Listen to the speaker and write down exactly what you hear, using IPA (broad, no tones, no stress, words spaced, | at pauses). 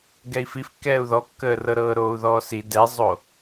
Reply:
ɡɛi̯fifkːɛːu̯ ðɔkːəːrɤ ɾɤːɾoːu̯ðɔːsi dɛzˤo